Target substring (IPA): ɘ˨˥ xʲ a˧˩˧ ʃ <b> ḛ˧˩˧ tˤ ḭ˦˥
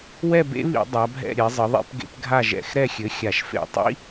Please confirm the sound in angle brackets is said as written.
no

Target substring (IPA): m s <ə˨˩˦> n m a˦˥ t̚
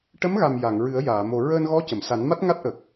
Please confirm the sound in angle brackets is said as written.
no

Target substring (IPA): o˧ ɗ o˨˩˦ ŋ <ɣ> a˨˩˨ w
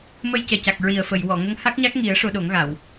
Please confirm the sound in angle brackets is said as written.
yes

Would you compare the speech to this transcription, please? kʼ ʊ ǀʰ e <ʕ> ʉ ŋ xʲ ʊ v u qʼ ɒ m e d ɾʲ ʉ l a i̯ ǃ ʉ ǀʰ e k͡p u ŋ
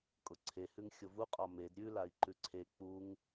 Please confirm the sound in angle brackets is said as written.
no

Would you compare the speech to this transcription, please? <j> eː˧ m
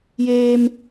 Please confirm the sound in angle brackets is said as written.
yes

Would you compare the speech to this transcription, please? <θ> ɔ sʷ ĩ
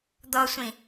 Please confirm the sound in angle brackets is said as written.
no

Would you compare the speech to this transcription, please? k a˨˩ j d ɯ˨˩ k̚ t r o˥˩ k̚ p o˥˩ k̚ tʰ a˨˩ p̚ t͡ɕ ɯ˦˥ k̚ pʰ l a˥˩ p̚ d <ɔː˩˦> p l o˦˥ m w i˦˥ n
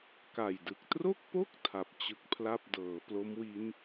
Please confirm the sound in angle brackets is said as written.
no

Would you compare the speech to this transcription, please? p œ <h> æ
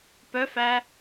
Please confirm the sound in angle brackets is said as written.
no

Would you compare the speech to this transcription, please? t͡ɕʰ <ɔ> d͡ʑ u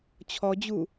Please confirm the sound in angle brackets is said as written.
yes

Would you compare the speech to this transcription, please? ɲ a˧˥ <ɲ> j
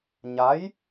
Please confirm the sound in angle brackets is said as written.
no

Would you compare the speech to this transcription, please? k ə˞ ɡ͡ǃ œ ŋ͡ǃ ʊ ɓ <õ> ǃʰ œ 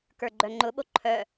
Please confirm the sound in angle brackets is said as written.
no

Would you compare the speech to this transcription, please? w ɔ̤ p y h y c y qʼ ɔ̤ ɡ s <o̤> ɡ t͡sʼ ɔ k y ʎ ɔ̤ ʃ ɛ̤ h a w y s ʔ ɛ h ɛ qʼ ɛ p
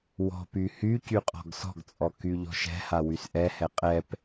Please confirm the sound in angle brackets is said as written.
no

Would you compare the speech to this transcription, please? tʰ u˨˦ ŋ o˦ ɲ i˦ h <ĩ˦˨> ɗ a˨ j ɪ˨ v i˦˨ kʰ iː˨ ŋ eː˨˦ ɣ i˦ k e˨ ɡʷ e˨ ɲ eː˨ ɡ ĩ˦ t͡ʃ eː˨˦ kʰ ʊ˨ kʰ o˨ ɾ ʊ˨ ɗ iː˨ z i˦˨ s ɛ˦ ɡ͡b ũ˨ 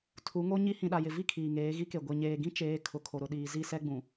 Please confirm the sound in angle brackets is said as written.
no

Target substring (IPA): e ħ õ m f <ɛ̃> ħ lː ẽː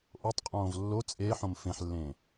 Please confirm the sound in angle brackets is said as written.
no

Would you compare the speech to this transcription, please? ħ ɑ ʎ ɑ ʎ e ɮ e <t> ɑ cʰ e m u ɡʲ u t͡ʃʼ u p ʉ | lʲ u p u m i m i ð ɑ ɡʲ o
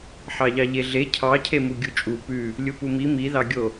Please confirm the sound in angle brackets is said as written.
no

